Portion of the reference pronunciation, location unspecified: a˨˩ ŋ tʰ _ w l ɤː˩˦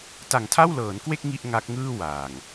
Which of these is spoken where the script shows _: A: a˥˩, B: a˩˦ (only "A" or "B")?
A